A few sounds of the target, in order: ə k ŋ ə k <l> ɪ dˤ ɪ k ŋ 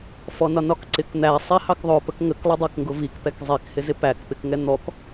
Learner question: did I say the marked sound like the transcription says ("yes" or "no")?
no